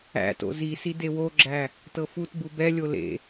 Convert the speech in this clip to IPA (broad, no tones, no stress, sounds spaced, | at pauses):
æ̰ t o̰ z i s i d e w o ɡ͡ǁ æ | t ɤ f u t b u b ɛ lʲ o l ḛ